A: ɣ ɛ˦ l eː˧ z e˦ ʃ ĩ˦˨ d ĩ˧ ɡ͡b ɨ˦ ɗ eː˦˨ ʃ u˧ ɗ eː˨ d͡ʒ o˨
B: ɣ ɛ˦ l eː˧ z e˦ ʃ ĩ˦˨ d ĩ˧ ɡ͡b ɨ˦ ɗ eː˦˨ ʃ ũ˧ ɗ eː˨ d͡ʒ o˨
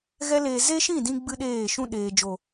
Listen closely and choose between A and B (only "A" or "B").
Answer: B